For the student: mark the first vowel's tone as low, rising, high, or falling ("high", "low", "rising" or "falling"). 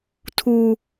high